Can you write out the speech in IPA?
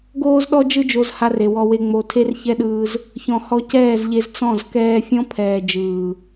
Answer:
ɡoː˧zɗɔ˧d͡ʒɯ˧ d͡ʒo˧z ha˧re˨ wɔ˧we˧ ŋ͡mo˧ tʰe˦rçɛ˦ɗɯː˧z | çɔ̃˨hɔ˧ cɛː˦˨zʎe˧z t͡sɔ̃˦˨z kɛː˧fʲɔ̃˦pʰɛː˨ d͡ʒɯː˨

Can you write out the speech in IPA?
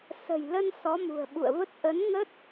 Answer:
sə̤˨˩jlə˧n sɔ˨˦mṳ˨˩ə̯ ɓṵ˧˨ə̯və˦˥t̚ ʔə˨˦nŋə˦˥t̚

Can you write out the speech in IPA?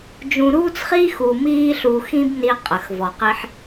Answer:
d͡ʒũ˧ɾuː˥t͡sχiː˥x u˧ miː˥ɬu˧xĩ˥bni˧ qʼə˩x vɔ˩qi˧ħ

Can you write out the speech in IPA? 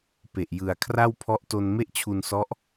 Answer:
pe˨˩ʔjɯ˨˩a̯ kʰra˥˩wpʰɔ˦˥ʔto˧n me˥˩ʔt͡ɕʰu˧nsɔ˦˥ʔ

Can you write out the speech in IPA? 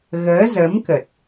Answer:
ɣəː˨˦zə˨˦mkə˨˩t̚

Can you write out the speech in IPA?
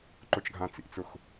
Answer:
ǃʊt͡ʃɡʱãt͡sḭt͡sʊx

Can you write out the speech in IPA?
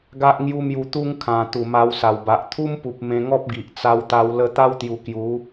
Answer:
ɡa˦ʔ ŋju˦mju˧ t̪u˦ŋ kʰã˨˩ t̪u˨˩ma˧wsa˨˩wba˨ʔ t̪ʰu˦mpu˨p̚ mẽ˧ŋɔ˦p̚ɡi˨ʔ t͡sa˧wt̪a˧w lə˧ t̪a˦wt̪ju˨˩ kju˨˦

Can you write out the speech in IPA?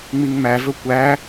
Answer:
ŋ͡miŋmævɵ kʷæ

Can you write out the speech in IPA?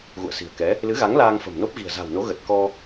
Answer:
ɣṵ˧˨ə̯si̤˨˩ə̯kɛ˨˦ | lɨ˨˦ɣa˨˦ŋ laː˧ŋfə̤˨˩mno˦˥p̚ ɣi̤˨˩ə̯za̤˨˩wno˨˦ ɣə˨˩t̚kɔ˧

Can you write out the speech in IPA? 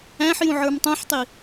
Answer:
æ̃ħjũ ʕə˞mtˤũħtˤi

